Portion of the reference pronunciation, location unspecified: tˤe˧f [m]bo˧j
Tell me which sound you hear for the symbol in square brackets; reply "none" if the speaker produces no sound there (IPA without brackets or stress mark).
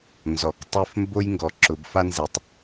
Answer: m